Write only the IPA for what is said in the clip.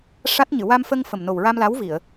ʂa˦˥t̚ɲɨ˨˩˨ wa˧mfə˧ŋ fə˨˩mno˨˩wɹa˧mla˧˥w vi˨˩˨ə̯

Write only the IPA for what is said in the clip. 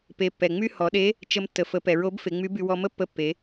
pe˩˧pːɛ˩ ŋ͡my˥ hɔ˩˧ɗe˧˥ | t͡ʃə˧mtːə˩ fə˩˧pɛ˩ɹo˧˥b fe˩˧ŋ͡my˧˥by˧ wɔ˧mə˥ pːə˧˥pːe˩˧

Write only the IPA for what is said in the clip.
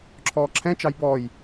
ǁʰɔːǁʰɛ̃t͡ʃɑj bɔːj

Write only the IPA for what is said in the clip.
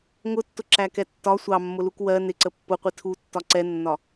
ŋʊtːʊǁækɛ tːɒ sʷɑmːʊluk wɜ nɪǀə pːʊqʷi tʰutːɒ ǀɛnːɒ

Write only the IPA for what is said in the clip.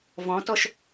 vɔ̃tɔʃ

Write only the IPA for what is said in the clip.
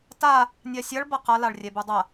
ta | nʲasʲɐɭ bɐqɐ laɭrʲɛbudˤɐ

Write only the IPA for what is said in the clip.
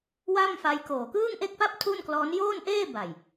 wa˥˩mfa˦˥jkoː˨˩ kɯː˥˩ŋʔe˥˩k̚pa˥˩p̚ tʰu˥˩nklɔː˦˥n joː˥˩nʔeː˥˩ ba˨˩j

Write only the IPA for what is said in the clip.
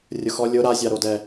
rʲʊxɔ lʲʊ ɾazʲaɾodɛ

